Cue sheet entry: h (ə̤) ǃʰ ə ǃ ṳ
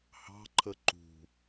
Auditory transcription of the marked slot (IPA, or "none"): ɑ̤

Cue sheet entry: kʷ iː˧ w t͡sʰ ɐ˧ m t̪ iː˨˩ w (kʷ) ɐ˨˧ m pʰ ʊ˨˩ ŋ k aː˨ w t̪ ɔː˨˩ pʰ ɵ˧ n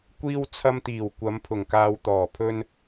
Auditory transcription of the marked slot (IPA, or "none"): kʷ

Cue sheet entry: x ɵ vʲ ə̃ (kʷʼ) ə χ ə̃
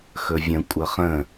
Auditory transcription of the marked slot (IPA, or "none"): kʷʼ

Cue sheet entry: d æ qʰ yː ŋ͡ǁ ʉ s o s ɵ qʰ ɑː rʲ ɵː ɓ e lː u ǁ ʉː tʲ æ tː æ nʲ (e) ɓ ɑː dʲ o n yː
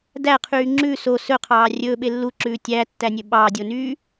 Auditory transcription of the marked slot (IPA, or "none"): ø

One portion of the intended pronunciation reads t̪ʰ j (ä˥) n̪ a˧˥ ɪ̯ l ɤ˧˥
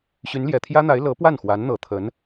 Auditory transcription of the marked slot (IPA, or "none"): ä˥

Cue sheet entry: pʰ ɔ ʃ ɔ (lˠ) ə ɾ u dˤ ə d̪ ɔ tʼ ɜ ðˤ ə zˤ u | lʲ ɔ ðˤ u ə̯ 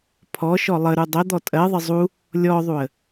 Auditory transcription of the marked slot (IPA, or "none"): lˠ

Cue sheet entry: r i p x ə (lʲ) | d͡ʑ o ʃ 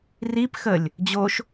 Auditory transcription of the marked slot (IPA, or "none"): lʲ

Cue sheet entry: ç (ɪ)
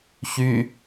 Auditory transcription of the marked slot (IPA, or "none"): y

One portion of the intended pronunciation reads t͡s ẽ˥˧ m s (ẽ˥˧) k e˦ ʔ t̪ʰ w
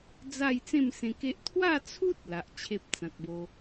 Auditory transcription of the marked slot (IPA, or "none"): ẽ˧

